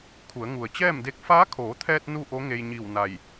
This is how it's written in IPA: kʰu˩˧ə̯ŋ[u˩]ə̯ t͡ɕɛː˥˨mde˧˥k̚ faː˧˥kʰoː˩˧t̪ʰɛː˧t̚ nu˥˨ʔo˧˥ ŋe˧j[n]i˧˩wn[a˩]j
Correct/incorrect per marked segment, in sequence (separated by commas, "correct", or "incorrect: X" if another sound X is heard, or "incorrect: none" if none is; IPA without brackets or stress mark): correct, incorrect: ɲ, incorrect: a˧˩